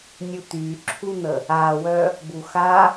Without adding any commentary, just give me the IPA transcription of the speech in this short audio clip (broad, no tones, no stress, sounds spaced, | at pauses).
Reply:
nʲ u t̪ y ǁʰ u n̪ ə | a w œ | b u x a